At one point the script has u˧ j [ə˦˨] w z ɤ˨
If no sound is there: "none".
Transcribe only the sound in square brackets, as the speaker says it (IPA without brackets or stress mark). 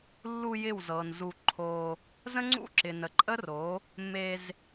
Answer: ɪ˦˨